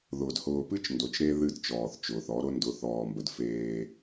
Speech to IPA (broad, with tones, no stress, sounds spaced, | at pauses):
ð ʊː˨ d h ʊː˨ p ɨ˦ t͡ʃ n d o˨ t͡ʃ ɾ e˦ ð ɨ˦˨ d t͡ʃ ɔː˨ θ t͡ʃ ʊː˨ θ ɔ˨˦ ɾ ʊ˦ n d ʊ˨˦ θ ɔː˨ m b ə˨ d f eː˦